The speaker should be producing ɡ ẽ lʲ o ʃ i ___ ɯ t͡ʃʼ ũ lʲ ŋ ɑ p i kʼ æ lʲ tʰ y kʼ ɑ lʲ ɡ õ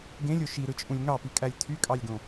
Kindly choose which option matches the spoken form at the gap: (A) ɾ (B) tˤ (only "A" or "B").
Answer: A